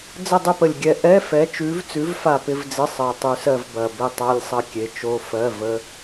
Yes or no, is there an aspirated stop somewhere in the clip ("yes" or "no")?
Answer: no